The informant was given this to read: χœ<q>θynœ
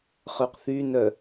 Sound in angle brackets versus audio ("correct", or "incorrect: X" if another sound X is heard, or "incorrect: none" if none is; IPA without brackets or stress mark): correct